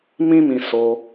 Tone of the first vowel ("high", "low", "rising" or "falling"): high